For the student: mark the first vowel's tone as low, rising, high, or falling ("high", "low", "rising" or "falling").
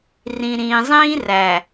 low